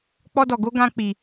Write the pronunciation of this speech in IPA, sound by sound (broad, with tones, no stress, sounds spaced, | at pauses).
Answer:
k͡p ɔ˦ d ɔ˧ ɡ o˦ ɡ ã˦ k͡p i˧